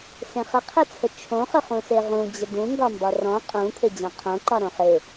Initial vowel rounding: unrounded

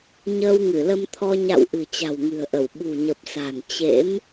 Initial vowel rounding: unrounded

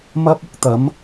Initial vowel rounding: unrounded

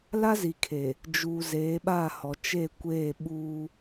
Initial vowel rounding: unrounded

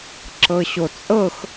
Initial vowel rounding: unrounded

